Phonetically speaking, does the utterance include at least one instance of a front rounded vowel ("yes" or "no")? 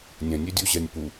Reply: yes